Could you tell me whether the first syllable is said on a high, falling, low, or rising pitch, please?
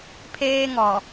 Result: high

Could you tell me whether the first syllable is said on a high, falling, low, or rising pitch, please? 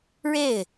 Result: falling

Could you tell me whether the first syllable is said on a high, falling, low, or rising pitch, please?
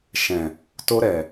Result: low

